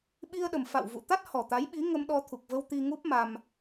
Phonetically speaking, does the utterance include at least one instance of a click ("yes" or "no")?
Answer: no